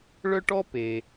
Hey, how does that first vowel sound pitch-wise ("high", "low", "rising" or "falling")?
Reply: high